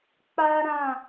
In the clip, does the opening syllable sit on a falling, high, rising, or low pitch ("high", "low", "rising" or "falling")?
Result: high